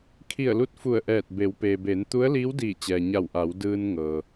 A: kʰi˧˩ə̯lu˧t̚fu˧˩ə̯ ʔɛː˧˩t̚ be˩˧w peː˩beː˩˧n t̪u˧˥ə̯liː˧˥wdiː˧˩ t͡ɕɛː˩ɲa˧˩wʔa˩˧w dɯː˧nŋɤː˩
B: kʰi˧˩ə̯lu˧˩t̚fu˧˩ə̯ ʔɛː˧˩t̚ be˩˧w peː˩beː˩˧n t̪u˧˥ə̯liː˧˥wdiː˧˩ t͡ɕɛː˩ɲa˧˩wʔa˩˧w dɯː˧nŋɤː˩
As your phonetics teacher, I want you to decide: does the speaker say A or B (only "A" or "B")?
A